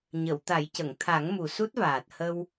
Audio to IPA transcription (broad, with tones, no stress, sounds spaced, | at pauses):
ɲ ə˨˩˨ w t̪ a˨˩˦ j c ə˨˩˨ ŋ t̪ʰ a˨˩˦ ŋ m u˨˩ s u˦˥ t̚ v aː˨˩ t̚ h ə˧ w